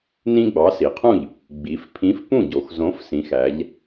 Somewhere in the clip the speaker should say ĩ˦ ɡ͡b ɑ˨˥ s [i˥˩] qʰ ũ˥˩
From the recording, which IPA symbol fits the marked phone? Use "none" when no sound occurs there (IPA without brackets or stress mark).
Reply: i˩˧